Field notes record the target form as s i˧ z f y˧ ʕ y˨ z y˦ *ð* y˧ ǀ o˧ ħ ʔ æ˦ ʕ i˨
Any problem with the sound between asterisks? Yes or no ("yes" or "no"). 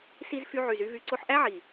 yes